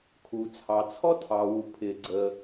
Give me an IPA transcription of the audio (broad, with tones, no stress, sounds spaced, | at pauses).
kʰ u˩ t͡sʰ ɑ˩ t͡sʰ ɔ˥ tʰ ɑ˩ w u˩ pʰ ɪ˩ ɡ͡ǀ ə˩